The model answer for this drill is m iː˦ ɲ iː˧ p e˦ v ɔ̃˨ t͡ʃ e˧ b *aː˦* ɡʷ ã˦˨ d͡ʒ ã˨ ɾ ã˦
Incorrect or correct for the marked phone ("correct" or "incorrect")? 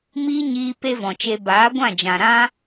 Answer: incorrect